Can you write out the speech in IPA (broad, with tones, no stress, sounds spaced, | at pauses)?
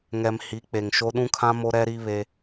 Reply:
ŋ ɛ˨ m h i˨˦ k͡p e˨ ŋ ʃ o˦ ɗ ũ˦ kʰ ã˦ m o˦ ɾ ɛ˦ ɾ i˦ β e˦